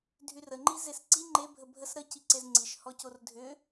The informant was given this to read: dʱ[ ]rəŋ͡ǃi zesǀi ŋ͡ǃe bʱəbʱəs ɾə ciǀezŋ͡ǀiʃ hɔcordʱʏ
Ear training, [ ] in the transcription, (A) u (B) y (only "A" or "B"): B